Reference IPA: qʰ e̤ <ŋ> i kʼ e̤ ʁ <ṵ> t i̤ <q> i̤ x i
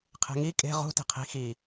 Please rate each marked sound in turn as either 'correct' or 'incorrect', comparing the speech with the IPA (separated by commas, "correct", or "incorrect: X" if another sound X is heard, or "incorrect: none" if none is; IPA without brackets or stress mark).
correct, incorrect: ṳ, incorrect: qʰ